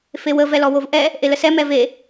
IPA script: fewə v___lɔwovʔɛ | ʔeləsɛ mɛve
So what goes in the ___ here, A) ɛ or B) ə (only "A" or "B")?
A